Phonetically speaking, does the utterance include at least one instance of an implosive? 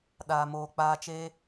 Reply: yes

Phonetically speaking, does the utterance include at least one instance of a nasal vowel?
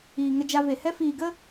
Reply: no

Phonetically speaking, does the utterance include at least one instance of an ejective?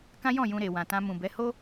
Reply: no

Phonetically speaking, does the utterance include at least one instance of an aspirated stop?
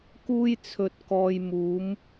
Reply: yes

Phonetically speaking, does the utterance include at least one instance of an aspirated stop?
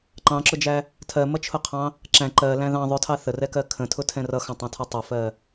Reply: yes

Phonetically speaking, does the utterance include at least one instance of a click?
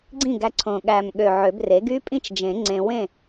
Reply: yes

